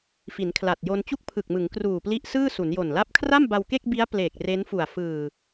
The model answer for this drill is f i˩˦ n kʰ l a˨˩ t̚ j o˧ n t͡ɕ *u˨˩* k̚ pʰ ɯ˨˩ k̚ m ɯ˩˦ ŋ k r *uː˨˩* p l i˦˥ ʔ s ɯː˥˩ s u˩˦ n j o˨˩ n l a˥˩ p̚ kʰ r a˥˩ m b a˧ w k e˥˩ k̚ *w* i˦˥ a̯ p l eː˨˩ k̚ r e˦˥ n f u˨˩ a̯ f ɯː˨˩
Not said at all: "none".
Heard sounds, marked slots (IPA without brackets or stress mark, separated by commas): u˥˩, uː˨˩, b